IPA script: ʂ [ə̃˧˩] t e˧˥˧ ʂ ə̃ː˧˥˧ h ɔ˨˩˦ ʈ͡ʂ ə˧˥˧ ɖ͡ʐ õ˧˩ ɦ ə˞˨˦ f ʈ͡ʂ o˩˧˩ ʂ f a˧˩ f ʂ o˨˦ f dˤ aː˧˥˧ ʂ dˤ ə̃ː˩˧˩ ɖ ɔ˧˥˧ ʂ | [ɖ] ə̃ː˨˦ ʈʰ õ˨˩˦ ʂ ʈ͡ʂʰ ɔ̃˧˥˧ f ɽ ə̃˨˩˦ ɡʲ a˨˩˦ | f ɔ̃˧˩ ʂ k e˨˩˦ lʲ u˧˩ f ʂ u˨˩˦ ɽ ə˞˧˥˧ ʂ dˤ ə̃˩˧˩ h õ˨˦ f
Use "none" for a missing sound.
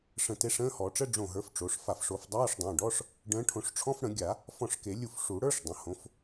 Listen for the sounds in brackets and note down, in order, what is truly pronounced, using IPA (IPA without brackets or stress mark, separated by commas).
ə̃˧˩, ɖ